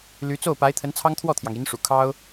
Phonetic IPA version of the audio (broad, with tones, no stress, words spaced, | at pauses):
ly˧˥ t͡so˥˩ʊ̯pa˧˥ɪ̯ t̪ʰə˧˥nt͡sʰɑ˥ŋ t̪ʰwɔ˥˩t̪ʰjɑ˩ŋ i˧˥nʂṵ˨˩ kʰɑ˥ʊ̯